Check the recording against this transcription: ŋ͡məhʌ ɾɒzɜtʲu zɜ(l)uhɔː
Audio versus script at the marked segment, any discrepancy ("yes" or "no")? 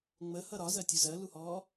no